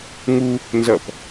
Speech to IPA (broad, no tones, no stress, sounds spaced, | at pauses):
ŋ u | n z ʌ p